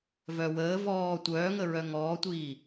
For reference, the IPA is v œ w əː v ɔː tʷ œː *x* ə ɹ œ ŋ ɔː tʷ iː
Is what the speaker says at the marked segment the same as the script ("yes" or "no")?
no